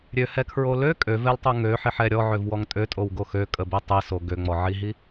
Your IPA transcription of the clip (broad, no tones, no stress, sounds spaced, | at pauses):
ɾʲ ø h ɛ kʰ ɹ o l ø kʼ ø v ɛ l tˤ o ŋ ø ħ i ħ ɛ ɾʲ ɔ ʕ ø v w ɔ ŋ tʼ ø tʼ o w ɡ o x ø kʼ ə b i tˤ i s o ɡ ø ŋ͡m ɔ ʕ i ɦ i